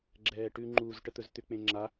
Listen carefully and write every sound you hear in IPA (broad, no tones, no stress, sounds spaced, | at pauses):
ɡ͡ǁ ɛː ʈ ʉ ŋ͡ǃ u z ʈ ə t̪ ɵ z t̪ ʏ k͡p ẽ ŋ͡ǁ a